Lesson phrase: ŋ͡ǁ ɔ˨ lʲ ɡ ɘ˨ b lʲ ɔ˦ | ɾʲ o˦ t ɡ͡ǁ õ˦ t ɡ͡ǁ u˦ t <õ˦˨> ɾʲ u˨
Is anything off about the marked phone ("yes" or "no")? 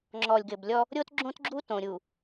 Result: yes